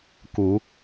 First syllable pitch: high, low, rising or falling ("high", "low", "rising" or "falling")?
rising